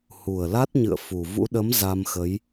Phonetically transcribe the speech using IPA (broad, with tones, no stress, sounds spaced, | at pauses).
h u˨˩ ə̯ l a˦˥ t̚ ɲ ɨ̰˧˨ ə̯ f u˨˩ v ṵ˧˥ ɗ ə˨˦ m z a˧ m x ə˨˦ j